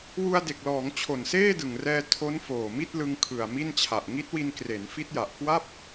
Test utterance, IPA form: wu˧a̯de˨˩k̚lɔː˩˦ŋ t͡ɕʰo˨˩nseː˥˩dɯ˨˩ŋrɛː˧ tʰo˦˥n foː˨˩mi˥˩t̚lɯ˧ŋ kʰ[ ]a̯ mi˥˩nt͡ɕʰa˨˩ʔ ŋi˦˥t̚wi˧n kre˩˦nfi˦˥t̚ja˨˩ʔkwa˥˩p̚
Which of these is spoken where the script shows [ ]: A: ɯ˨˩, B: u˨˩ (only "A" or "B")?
A